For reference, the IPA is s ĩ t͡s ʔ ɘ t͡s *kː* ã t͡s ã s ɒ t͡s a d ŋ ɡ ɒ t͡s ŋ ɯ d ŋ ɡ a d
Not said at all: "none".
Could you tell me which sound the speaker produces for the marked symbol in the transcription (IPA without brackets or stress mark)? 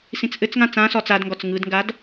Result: ŋ